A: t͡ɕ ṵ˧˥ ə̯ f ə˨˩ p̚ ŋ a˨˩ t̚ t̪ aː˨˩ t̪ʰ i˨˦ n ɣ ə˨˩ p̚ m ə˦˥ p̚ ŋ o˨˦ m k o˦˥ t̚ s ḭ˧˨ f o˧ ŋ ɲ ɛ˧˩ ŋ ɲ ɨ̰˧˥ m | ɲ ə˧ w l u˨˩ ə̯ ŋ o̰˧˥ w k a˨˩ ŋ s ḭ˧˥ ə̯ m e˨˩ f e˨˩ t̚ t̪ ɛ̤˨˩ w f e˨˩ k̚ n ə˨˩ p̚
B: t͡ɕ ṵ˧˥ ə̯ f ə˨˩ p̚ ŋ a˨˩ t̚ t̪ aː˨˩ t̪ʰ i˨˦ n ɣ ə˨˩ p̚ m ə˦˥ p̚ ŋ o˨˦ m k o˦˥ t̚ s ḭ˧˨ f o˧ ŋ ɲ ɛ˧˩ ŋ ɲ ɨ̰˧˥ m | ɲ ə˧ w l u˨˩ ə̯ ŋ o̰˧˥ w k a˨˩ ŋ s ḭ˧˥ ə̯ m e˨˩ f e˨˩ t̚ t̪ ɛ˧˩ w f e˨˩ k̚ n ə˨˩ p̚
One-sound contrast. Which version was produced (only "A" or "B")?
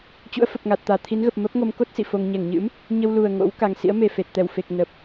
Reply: B